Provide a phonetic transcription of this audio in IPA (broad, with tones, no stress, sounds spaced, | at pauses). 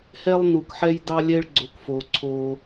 h ɛ˦ lˠ n u˨ k ħ ɛ˦ j d ɑ˦ lʲ ɛ˦ ɭ ɡ͡ǀ o˨ k f o˨ ǀʰ o˧